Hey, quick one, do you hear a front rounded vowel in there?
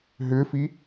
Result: yes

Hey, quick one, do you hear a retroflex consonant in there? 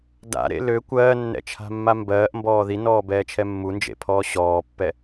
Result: no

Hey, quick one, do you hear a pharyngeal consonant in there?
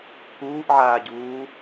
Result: yes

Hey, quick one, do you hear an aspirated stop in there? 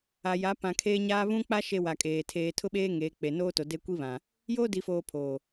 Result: yes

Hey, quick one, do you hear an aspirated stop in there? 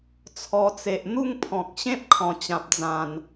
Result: yes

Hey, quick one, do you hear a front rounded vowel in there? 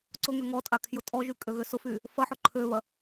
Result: yes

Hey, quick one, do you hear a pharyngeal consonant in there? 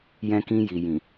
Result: no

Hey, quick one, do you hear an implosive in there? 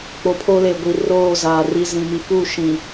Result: no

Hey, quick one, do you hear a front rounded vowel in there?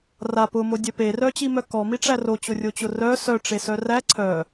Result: yes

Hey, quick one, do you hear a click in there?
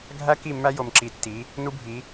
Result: yes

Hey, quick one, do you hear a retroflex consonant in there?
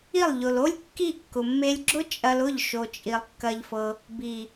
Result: no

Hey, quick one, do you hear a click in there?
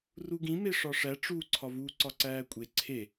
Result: yes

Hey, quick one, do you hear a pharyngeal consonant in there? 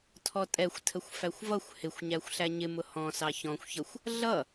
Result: no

